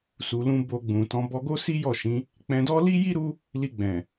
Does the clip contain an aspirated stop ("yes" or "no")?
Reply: no